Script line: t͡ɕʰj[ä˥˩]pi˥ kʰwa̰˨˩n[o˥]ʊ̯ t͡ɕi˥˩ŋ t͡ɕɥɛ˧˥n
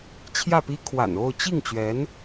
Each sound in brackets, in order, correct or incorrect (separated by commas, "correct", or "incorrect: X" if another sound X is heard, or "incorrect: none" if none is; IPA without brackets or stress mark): correct, incorrect: o˥˧